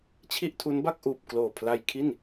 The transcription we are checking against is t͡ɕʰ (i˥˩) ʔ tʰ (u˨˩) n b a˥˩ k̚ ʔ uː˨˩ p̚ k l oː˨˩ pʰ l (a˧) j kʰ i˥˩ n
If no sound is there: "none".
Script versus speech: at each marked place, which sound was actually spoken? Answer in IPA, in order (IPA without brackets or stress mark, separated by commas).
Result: i˥˩, u˦˥, a˧